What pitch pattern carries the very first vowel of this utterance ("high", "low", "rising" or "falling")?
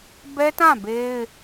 high